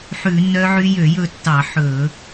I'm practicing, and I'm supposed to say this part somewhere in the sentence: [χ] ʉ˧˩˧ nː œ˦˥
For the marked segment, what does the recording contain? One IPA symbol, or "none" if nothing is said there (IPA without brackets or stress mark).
ħ